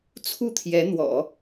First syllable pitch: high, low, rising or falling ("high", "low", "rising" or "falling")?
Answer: falling